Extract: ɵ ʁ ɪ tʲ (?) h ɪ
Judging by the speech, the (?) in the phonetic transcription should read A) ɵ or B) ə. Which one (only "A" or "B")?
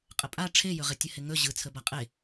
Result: B